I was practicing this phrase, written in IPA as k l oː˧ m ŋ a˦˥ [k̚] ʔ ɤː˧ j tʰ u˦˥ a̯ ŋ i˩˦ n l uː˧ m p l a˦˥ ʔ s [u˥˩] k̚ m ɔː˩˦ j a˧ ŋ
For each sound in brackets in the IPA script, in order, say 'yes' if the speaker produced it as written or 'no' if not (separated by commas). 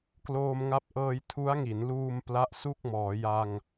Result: no, yes